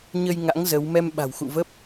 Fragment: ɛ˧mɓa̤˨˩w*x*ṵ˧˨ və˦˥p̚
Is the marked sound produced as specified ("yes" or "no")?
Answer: yes